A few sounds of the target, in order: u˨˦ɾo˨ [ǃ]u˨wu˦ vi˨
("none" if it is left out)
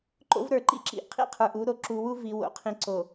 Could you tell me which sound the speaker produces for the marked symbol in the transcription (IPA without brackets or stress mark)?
ǁ